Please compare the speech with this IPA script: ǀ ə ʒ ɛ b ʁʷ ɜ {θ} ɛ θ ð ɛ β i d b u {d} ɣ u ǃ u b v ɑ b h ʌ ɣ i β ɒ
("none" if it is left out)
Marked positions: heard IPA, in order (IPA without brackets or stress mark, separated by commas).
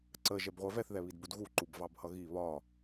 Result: v, d